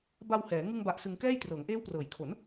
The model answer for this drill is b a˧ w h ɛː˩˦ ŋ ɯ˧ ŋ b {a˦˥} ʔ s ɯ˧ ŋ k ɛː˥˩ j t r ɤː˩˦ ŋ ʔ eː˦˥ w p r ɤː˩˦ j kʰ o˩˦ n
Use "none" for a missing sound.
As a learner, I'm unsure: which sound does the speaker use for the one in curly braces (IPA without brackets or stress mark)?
a˨˩